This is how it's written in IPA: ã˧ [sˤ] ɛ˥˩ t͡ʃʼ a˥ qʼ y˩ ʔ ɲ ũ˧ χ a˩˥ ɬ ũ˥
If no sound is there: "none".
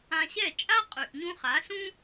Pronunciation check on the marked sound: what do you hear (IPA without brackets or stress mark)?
ɕ